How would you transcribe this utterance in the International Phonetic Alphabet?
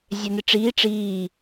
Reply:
zʲ ɛ n ɪ ʈ͡ʂ iː ʈ͡ʂ iː

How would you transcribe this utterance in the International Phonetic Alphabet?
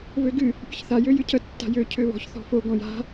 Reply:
v ø ɡ ɨ | pʲ ə ç θ a j ø j ɨ cʰ ə tː a̤ j ø cʰ ø β ɔ̤ ç θ ɔ̤ f o ɡ ɔ̃ j a̤

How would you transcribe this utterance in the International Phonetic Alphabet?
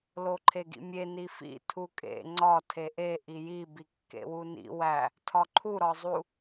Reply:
l o ǃʰ e ɡ ḭ mʲ e n i f ḭ tʰ u kʼ ḛ ŋ͡ǀ ɒ tʰ e ʔ e ʔ i j i b i kː ḛ w u n ḭ w æ | tʰ ɒ ǃʰ u ɾ ɒ zˤ u

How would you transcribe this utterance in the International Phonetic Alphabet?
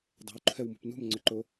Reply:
dˤ e̤ w ǃʰ ɛ w m ṳ p n ṳ m ŋ͡ǀ ʏ ǃ o

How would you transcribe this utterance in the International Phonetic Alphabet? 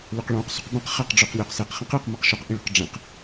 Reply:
l œ q ɭ õ q s ṳ q b ɛ̃ q χ ɛ q ɖ͡ʐ ʉ q lʲ o q s e q χ ɛ̃ q e q m ɤ q ʃ o q ʔ ĩ ɭ ṳ q ɖ͡ʐ ẽ q

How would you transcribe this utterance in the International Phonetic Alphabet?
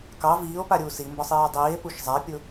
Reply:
k ɑ v iː o̯ p a ɾʲ uː s i m b ɒ sˤ iː o̯ dˤ iː e̯ p u ʃ zˤ a pʲ ʊ

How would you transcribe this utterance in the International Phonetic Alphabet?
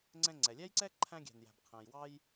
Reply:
ŋ͡ǀ ɛ̃˧ ŋ͡ǀ ɛ˩ lʲ æ˥ j ǀ ɛ˥ ǃʰ æ̃˧ ɡʲ æ̤˩ n j æ̤˩ b qʰ æ̃˩ j w ɑ˧ j

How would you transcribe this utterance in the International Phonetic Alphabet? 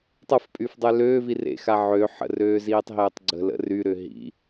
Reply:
tˤ ə f pʼ y f dˤ ø l øː v i r ḛ x a ʕ ø ħ ə̰ r øː z iː tˤ ɦ eː tˤ ɡ͡ǀ ə̤ l ə̰ r y ɾ ʏ ɦ ḭ

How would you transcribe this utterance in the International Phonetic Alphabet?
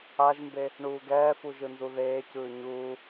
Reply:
a ʒ m b e | ɳ uː ɡ ɛː f u ʒ ɯ n z u ð eː c ɯː ɲ uː

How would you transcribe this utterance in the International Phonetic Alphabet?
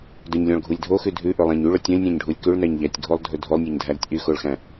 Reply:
d ɵ ɲ lʲ ɔ̃ ɭ ɡʱ u lʲ dʱ o x ʉ dʱ ʉ ʔ ɵ lˠ æ̃ ɲ y ɭ ɵ tʲ ɔ̃ lʲ nʲ æ̃ ɲ ɖʱ u lʲ k ʉ ɭ n æ ɲ ʎ æ tʲ ɡʱ o lˠ dʱ ɵ dʱ o lˠ nʲ o ɲ dʱ æ ɾ ʉ tʲ ʔ y x o ɭ x æ̃

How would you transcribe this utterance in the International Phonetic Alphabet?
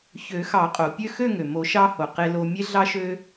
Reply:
ç ø˨˩˦ x ɑ˨˩˦ qʼ o˩ pʲ ø˥˧ x ø˥˧ ŋ ø˩ m o˨˩˦ ʃ ɑ˧ h o˩ q e˧ l o˧ mʲ e˧ ɮ ɑ˧ ʃ ø˧

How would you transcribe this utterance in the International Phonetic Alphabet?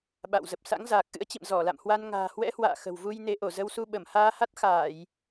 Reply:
ɓ a̰˧˨ w z ə˨˩ p̚ s a̰˧˥ ŋ z aː˨˩ k̚ ʔ ɨ̰˧˥ ə̯ t͡ɕ ḭ˧˨ m z ɔ˧˩ l a̰˧˨ m h w a˧ n ŋ a̤ː˨˩ h w ɛ̰˧˥ h w a̰ː˧˨ x ə̤˨˩ w v u˧ j n e˨˦ ʔ o˧˩ z ə˧ w s u˧ ɓ ə˧˩ m h aː˧ h a˦˥ t̚ x aː˧˩˨ j

